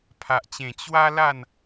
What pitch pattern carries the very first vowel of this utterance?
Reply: low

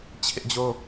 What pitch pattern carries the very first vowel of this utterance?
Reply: high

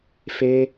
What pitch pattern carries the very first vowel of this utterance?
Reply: high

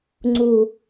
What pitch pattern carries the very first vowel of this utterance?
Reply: low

